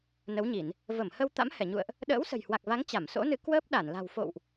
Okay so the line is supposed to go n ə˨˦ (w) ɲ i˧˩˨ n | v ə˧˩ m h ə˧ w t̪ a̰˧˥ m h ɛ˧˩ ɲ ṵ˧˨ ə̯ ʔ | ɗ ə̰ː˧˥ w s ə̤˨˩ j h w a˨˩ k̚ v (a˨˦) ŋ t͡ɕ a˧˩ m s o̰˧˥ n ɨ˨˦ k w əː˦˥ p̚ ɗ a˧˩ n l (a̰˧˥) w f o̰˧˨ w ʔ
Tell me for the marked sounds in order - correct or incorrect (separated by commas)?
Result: correct, correct, incorrect